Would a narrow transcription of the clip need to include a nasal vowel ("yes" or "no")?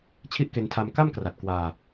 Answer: no